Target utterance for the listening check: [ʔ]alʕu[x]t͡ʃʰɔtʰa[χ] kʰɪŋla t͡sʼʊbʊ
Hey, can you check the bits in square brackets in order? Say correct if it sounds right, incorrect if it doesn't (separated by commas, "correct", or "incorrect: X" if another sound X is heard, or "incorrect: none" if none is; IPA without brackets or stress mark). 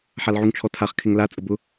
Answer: incorrect: ħ, incorrect: ŋ, correct